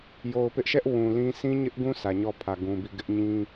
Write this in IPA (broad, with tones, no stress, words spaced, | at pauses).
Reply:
jo˨ʊ̯pɪ˦ʔʃɛ˦ʔ wũ˨lĩ˦ sʰĩ˦ɲɪ˦ʔɡũ˦ sʰä˨ɲɔ˦˨pʰä˨ ɡũ˨bi˦˨ɡɪ˦ʔ ɲĩ˦